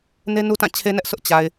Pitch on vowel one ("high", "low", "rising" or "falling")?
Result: high